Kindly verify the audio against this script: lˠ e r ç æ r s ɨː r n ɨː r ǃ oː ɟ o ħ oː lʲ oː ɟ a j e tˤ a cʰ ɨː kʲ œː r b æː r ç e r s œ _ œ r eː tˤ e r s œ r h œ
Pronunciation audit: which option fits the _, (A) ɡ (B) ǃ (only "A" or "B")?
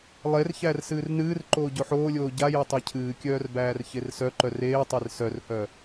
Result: B